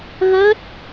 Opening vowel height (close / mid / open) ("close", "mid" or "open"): mid